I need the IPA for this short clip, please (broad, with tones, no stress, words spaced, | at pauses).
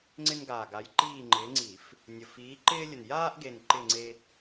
ŋ͡ǀɪ˦nɡaː˨˩ɡa˨˦j ǃiː˦˨ŋ͡ǃɪː˨˦ŋ͡ǀi˧˩˧f | nʲə˨˩f iː˨˦ ǃɪː˦lʲə˨˩n jaː˦ʔɡe˨˩n ǃɪ˦˨ŋ͡ǀe˦